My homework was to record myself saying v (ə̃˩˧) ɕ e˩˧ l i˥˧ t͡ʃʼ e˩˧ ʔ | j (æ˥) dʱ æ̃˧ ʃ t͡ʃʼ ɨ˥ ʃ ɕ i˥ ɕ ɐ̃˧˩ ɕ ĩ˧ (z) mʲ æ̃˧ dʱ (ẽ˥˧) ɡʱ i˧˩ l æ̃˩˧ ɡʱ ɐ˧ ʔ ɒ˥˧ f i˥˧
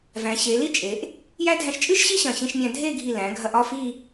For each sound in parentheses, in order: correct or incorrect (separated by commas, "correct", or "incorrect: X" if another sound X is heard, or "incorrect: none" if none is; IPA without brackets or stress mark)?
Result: incorrect: æ̃˩˧, correct, incorrect: ʃ, incorrect: e˥˧